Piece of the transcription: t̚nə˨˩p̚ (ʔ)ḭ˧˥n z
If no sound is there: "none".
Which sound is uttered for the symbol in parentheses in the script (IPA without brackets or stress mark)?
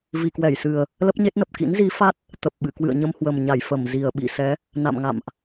k